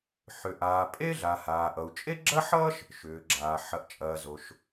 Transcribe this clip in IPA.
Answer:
ħʏ˩ʔaː˩pʼe˥ɮa˩ haː˩ʔʌ˩u̯ t͡ʃʼe˥ɡ͡ǁɐ˥ħʌː˥ʃ | ʃʏː˩ɡ͡ǁaː˩ ħɐ˩ʔt͡ʃʼɐː˩ zo˩ʃ

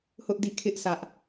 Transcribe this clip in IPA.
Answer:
hʊ˦ʔdi˦˨kʰɪ˦ʔ sä˦ʔ

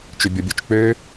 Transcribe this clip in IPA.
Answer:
t͡ʃʏbʲɔbʲot͡ʃk͡pø

